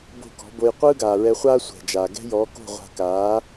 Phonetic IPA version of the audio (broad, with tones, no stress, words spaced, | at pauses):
bo̤˥˩kɔ̤˩˥bo˧j qʷɯː˥ɡaː˩ɹɛ˧χʷaː˥ sʷɛ̤˩d͡ʒaː˩ ɡɛ̤˥jɔː˩˥ ko̤˥˩ʁʷa̤˧kaː˩˥